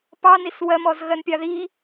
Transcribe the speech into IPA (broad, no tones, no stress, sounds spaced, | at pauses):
p ɑ n i s w ɜ m ɔ z ɣ ɜ n pʲ ɑ ð i